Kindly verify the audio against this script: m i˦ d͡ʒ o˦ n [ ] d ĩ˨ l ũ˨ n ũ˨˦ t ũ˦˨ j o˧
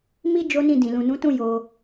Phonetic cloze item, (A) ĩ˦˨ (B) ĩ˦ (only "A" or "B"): A